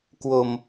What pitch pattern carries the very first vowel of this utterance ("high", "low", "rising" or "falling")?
low